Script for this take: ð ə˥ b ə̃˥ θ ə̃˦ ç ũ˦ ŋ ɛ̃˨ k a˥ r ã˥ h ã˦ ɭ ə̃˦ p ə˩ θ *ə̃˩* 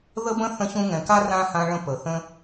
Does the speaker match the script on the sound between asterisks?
no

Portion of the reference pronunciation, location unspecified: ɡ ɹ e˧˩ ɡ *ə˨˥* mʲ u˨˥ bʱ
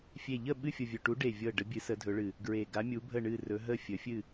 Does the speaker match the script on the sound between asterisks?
no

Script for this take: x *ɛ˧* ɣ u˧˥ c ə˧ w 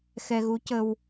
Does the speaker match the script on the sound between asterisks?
yes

